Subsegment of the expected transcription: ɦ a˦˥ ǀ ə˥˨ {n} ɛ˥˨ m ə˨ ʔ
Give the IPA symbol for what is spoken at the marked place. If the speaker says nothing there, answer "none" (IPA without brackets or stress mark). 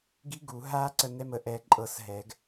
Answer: n